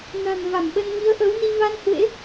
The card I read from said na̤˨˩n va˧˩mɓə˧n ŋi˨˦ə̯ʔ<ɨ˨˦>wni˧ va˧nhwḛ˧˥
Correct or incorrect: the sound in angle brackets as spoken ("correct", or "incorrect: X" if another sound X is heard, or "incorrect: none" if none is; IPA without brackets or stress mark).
incorrect: ə˨˦